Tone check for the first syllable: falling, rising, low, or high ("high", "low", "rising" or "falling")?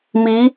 rising